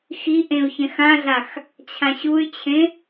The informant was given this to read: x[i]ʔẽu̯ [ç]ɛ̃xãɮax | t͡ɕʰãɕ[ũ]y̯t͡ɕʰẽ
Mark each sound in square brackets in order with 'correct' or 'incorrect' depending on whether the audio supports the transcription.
correct, correct, incorrect: u

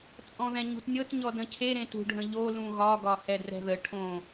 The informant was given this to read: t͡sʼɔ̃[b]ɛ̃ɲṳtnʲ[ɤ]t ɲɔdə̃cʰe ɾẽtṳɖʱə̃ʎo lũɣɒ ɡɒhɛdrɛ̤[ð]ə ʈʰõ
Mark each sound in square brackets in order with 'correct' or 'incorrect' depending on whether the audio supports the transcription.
incorrect: ð, correct, correct

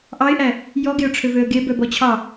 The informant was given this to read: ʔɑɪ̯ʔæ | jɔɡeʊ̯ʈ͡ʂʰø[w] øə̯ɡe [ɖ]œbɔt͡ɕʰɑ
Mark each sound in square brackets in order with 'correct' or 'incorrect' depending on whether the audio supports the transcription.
incorrect: v, incorrect: b

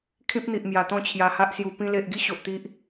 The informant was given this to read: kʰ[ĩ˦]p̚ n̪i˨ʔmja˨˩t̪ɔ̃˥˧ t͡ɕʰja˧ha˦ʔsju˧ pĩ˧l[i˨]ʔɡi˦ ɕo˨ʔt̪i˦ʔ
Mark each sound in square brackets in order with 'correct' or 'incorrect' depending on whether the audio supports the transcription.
correct, incorrect: e˨

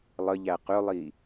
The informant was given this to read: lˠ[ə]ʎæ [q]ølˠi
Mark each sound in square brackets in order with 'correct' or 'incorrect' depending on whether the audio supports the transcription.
correct, correct

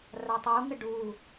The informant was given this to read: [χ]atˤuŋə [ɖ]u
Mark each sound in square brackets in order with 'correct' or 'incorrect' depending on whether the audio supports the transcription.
incorrect: r, correct

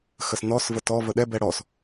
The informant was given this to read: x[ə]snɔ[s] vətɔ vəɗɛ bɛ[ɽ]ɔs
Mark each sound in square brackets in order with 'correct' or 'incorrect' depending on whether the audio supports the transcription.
correct, correct, correct

